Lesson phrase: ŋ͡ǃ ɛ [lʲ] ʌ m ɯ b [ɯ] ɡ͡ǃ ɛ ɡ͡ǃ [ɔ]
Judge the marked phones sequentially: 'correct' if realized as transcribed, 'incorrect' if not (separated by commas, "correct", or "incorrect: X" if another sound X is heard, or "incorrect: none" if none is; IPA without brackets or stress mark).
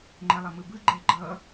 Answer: incorrect: lˠ, correct, incorrect: ʌ